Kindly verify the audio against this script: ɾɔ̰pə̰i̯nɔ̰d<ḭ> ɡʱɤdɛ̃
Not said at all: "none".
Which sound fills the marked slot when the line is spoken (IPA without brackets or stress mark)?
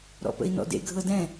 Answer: ḛ